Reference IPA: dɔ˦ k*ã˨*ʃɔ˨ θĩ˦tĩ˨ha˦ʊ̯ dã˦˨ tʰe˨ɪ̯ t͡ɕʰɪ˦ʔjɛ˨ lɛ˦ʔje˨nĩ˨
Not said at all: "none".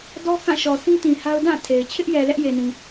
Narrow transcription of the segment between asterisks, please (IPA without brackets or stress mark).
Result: ã˦˨